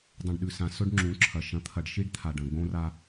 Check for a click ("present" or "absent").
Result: present